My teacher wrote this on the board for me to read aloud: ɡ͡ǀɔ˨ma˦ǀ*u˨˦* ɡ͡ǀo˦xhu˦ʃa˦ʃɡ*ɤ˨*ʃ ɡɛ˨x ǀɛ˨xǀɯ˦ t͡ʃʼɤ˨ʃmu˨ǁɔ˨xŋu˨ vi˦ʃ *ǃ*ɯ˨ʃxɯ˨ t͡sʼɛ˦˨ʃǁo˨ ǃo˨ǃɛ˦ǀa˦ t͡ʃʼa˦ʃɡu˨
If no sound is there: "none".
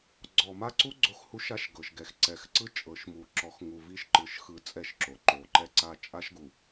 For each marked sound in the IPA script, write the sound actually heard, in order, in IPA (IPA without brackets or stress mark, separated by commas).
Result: u˦, ɤ˨, ǃ